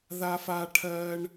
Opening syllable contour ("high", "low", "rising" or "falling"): high